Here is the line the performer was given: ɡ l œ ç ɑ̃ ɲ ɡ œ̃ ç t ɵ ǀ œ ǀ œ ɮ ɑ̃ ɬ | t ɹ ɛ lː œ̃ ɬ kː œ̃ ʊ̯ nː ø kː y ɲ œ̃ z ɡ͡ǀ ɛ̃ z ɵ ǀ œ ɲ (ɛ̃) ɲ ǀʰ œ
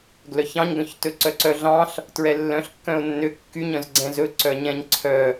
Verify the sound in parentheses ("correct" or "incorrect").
correct